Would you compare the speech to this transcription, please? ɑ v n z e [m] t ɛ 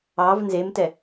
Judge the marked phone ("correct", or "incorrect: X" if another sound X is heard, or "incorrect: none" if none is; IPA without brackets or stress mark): correct